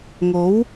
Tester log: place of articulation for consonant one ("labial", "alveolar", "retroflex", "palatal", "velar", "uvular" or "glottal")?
velar